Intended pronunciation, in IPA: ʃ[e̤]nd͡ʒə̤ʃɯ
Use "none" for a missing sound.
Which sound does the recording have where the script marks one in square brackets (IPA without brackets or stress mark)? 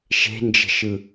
e̤